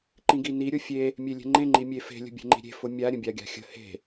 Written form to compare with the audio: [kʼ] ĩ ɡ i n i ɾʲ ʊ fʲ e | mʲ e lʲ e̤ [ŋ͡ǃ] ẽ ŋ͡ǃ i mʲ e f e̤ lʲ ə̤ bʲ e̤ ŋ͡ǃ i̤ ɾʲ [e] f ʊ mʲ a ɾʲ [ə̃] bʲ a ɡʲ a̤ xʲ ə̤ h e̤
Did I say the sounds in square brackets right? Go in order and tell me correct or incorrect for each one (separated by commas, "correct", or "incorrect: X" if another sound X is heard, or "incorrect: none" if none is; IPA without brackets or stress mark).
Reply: incorrect: ǃ, correct, incorrect: e̤, correct